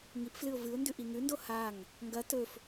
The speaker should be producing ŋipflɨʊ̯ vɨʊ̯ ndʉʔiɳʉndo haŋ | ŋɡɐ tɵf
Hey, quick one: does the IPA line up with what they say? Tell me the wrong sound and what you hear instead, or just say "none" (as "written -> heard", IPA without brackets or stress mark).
ɳ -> ŋ